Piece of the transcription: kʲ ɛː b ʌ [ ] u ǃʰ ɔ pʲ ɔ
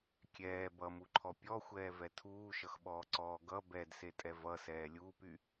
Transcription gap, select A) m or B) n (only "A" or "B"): A